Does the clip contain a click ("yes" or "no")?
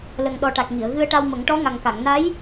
no